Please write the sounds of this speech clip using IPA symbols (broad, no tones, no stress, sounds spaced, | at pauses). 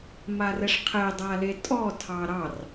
m a r ɛ ʂ qʰ ɛ dˤ a l e tʼ ɔ tʰ ɑ ɾ ɑ r